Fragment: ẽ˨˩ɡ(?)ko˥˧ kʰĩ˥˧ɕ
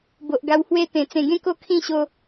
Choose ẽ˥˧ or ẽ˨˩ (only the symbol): ẽ˥˧